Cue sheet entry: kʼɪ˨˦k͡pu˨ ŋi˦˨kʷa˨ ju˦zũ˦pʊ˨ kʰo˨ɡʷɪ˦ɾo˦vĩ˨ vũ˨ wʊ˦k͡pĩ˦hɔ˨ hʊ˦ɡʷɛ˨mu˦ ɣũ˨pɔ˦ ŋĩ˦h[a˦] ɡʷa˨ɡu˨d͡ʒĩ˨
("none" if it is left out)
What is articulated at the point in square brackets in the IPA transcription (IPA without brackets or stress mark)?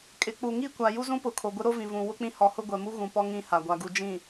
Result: a˨